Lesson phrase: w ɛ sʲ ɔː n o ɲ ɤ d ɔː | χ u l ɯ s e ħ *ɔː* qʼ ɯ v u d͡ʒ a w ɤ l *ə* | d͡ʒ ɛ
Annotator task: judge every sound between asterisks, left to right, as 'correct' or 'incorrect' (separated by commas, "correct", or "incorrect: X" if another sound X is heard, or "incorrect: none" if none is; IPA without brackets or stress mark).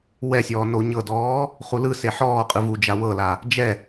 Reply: correct, incorrect: a